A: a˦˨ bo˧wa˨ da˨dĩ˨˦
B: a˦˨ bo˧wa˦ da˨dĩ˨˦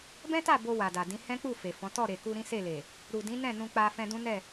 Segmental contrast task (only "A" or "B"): A